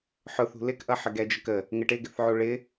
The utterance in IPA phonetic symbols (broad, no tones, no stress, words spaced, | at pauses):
ħʊθṳ lɪkʔʌħəɡɛ d͡ʒəkə | ŋɪʈɪɡɪθʕu ɭɪ